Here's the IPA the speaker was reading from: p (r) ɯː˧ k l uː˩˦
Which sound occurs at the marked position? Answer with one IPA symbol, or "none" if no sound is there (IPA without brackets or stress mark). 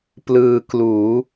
l